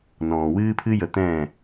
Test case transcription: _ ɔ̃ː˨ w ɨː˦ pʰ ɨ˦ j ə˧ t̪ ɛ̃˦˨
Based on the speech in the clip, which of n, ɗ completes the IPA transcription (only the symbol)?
n